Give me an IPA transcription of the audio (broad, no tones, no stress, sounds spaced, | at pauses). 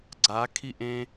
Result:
ɡ͡ǀ a kʰ i ʔ ẽ